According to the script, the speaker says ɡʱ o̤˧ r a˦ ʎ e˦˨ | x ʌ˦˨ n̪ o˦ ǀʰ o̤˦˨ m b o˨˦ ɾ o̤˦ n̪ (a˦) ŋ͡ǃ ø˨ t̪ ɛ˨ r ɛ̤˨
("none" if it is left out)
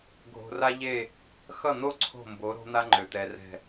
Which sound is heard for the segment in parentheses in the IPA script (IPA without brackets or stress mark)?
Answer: a˦